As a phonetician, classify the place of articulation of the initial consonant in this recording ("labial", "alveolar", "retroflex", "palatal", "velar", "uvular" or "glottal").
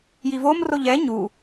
palatal